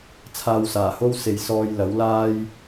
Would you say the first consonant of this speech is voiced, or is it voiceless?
voiceless